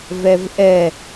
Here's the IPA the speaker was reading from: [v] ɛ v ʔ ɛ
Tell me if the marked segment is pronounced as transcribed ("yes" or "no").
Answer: yes